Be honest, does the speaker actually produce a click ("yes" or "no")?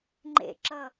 yes